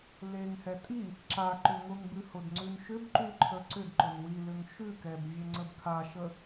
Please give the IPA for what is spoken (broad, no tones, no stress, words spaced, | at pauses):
leŋhɛ tʼi | ǁa ǃʏŋʊŋbʉ hʊdŋ͡ǀʉnʃʏbǃʉ ǃʰəǀʏdǃʊn wi lʏŋʃʉkɛb vʲeŋ͡ǀəbkʰaʃə